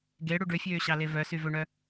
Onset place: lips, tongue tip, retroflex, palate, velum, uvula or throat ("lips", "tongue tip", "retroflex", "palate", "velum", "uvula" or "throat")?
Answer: velum